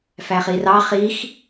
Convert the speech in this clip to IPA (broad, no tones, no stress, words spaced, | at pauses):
fæχirɑ χix